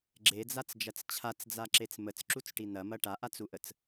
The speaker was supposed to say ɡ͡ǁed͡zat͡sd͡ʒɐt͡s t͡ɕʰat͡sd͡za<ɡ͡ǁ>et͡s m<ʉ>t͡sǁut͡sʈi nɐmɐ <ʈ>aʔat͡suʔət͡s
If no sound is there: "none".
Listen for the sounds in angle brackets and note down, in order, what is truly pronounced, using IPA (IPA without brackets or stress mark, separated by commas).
ǁ, ə, ʈ